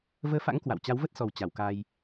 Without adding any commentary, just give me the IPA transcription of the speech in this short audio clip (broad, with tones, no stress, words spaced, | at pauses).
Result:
vəː˧fa̰˧˥ŋ kwa̰˧˨w t͡ɕa˨˦wvə˦˥t̚sɔ˨˩w t͡ɕa˧˩wka˧j